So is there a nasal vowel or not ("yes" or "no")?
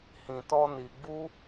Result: yes